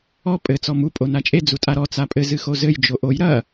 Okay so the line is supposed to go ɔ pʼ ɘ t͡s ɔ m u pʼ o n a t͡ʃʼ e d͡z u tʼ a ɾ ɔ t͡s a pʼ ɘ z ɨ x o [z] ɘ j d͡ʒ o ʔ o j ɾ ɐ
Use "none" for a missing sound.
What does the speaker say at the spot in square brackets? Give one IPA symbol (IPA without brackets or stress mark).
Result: z